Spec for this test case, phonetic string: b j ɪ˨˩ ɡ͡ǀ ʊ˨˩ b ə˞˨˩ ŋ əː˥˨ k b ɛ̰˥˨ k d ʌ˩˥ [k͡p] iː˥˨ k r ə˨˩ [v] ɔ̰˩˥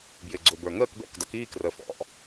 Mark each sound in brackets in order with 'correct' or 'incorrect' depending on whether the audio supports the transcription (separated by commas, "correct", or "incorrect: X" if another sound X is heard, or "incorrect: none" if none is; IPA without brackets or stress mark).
incorrect: k, incorrect: f